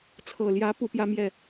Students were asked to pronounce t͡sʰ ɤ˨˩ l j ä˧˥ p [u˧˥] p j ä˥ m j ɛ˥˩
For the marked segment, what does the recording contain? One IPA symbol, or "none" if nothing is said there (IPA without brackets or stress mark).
u˧˥